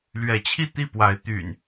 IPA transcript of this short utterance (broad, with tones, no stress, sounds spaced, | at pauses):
l ɥ ɛ˨˦ t͡ɕʰ i˥˨ t̪ i˥˨ p w a˨˦ ɪ̯ t̪ y̰˨˩ n